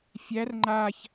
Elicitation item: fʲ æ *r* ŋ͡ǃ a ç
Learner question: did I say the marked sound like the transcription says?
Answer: yes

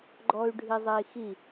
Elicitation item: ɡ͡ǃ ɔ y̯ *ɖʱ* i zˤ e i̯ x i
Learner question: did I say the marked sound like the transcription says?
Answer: yes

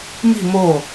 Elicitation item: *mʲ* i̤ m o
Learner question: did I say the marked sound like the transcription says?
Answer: no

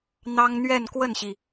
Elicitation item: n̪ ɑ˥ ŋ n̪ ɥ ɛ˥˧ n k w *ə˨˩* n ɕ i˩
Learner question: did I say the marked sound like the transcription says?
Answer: no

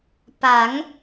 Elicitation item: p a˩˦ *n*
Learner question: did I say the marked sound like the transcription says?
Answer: no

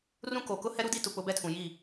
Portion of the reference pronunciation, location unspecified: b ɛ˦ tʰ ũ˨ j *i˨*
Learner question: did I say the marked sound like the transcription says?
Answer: no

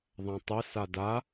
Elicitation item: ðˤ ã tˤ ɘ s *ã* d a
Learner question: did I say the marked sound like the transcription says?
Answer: no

